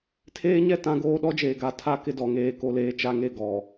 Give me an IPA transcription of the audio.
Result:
tʰ eː˦ ɲ ɛ˦˨ t ã˦ ɡ oː˦ ɗ ɔ˦ d͡ʒ eː˨ ɡ a˨ tʰ a˦ k ɪ˦ d ɔ˨ ŋ eː˦˨ k o˦ l eː˦ t͡ʃ a˦ ŋ e˦˨ ɡ ɔ˨

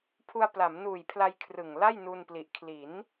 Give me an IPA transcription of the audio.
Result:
pʰ u˧ a̯ p l a˩˦ m n uː˨˩ j pʰ l a˧ j kʰ r ɯ˨˩ ŋ l a˥˩ j n u˧ n p l i˨˩ ʔ kʰ l i˩˦ n

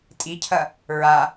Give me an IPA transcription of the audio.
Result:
tʼ i cʰ ɐ | ɹ a

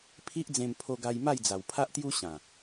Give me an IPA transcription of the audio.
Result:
pʰ i˦ ʔ d͡z ẽ˧ m pʰ o˧ ɡ a˧ j m a˥˧ j d͡z a˨˩ w pʰ a˦ ʔ t̪ j u˦ ɕ ã˨˩

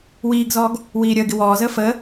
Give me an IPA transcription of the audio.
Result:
w iː ɡ z ɔː ɡ | w iː ɾʲ əː ɡ ɪ w ɔː z əː f əː

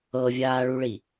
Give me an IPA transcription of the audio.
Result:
ɤ vʲ aː ɭ u ɭ i

